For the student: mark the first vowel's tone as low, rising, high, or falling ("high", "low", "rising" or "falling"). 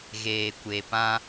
low